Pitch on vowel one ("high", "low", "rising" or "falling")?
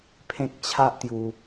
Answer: high